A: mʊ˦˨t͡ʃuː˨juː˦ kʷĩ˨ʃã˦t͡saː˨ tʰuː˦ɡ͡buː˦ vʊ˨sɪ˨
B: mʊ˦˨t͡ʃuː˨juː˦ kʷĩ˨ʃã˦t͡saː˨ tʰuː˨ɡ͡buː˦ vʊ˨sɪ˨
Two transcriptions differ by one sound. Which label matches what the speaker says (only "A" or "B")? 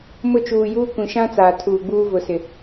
B